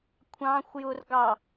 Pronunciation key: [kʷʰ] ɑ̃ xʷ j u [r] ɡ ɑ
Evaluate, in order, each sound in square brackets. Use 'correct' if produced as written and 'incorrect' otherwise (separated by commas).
correct, correct